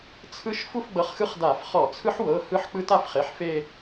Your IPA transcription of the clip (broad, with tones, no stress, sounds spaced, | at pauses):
t͡sʰ ɯ˦˥ ʃ f u˥˧ f ɡ͡b ɤ˨˥ χ x ɯ˦˥ χ d a˧˩˧ f χ ɔ˧˩˧ t͡sʰ ɯ˦˥ ħ w ɤ˩˧˩ h ɯ˦˥ ħ k͡p ɯ˦˥ t a˥˧ f χ e˩˧˩ ħ f e˥˧